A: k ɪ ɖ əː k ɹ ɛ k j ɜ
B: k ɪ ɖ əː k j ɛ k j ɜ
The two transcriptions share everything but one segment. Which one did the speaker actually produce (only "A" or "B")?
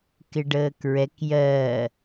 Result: A